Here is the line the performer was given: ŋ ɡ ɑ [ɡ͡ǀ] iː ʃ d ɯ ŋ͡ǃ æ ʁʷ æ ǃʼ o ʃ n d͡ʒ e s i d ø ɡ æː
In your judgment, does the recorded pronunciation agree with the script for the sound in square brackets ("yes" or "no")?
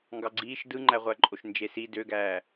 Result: yes